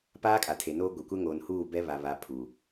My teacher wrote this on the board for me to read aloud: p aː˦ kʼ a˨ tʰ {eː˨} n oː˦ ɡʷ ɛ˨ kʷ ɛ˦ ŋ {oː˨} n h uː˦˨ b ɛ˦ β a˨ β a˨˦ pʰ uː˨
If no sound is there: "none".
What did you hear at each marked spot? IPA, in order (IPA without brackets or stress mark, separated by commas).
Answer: e˨, oː˨